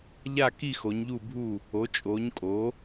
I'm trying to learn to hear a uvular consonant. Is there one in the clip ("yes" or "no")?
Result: no